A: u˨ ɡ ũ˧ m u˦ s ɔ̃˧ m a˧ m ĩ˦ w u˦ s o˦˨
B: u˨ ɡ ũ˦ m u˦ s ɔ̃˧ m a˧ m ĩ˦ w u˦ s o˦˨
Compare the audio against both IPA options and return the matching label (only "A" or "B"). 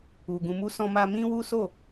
A